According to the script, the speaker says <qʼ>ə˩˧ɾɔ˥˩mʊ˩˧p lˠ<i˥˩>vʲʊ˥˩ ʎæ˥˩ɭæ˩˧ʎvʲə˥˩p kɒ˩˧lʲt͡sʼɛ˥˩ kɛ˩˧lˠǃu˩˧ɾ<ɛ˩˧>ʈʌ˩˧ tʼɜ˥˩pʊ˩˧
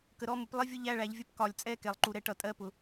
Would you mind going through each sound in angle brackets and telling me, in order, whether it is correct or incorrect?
incorrect: k, correct, correct

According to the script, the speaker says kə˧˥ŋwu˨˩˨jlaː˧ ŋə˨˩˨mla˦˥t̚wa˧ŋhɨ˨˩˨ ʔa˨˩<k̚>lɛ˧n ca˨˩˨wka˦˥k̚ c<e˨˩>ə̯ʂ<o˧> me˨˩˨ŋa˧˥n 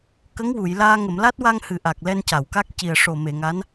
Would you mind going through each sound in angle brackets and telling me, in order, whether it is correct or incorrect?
correct, incorrect: i˨˩, incorrect: o˨˩

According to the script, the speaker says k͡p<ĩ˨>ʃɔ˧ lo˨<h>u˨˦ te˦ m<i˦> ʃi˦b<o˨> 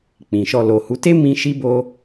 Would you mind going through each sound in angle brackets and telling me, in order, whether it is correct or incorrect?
correct, correct, incorrect: ĩ˦, incorrect: o˦

